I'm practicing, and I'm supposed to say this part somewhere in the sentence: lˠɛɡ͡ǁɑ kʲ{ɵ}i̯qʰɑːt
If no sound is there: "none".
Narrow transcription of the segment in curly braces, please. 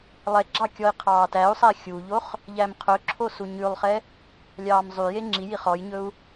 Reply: ɔ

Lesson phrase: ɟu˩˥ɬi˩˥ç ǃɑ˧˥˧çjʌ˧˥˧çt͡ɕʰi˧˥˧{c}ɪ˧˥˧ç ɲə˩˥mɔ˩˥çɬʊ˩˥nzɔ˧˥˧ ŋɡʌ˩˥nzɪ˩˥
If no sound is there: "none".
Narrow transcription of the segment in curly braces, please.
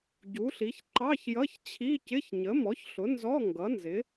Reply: c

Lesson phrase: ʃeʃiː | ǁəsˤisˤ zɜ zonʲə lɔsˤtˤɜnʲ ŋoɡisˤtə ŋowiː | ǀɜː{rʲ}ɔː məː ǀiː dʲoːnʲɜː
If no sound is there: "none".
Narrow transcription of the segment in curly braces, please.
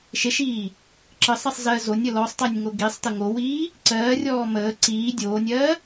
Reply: rʲ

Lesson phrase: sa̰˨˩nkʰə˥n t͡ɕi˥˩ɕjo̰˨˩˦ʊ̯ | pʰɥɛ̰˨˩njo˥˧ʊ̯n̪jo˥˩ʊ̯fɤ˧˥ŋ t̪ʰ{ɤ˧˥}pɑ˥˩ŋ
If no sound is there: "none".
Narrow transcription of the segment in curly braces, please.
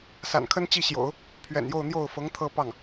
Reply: ɤ˥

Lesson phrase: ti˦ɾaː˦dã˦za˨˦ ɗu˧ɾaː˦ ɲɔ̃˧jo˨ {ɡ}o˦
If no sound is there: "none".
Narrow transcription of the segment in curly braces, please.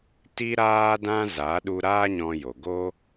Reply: ɡ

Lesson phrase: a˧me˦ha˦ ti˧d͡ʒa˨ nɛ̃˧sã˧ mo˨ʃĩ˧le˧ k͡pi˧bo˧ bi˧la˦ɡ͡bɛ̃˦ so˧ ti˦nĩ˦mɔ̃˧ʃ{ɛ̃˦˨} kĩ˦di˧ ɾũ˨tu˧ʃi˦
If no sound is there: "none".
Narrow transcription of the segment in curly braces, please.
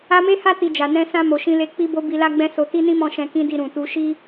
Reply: ɛ̃˧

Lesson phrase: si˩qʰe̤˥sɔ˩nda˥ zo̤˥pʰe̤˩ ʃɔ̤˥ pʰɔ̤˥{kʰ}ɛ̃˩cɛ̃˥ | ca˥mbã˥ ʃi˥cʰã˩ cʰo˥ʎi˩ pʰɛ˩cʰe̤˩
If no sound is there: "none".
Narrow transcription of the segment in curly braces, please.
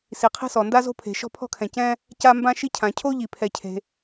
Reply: kʰ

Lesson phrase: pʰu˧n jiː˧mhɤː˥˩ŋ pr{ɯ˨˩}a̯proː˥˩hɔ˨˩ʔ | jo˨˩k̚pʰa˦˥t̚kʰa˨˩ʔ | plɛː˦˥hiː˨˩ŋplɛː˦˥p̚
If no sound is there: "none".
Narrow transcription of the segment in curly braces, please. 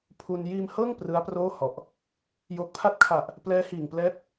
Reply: ɯ˦˥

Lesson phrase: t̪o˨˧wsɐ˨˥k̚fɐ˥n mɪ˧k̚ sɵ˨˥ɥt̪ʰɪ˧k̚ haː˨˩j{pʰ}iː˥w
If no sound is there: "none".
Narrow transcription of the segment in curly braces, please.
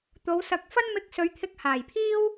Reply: pʰ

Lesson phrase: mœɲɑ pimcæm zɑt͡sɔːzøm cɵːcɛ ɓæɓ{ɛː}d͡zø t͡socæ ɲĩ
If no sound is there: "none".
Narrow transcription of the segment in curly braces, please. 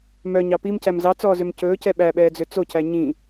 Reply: ɛː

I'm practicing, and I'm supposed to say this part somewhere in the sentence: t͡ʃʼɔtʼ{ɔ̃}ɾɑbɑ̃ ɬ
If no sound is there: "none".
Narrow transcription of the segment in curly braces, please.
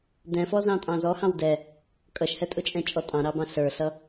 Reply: ɑ̃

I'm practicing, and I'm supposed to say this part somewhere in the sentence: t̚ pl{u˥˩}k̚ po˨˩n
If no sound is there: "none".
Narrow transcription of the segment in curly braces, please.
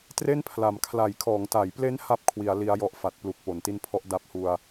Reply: u˨˩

